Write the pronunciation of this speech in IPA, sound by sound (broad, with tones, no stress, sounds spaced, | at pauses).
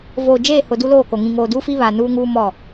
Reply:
v oː˨ d͡ʒ eː˦˨ h ʊ˨ d u˦ l oː˦˨ k o˨ ŋ ĩ˨ ŋ oː˨ d uː˦ f i˦ β a˨ n uː˦ ŋ uː˦ m ɔ˦˨